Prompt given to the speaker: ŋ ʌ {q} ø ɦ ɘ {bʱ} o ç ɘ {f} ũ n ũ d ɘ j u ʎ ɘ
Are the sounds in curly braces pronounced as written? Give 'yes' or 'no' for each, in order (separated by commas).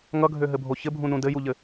no, yes, no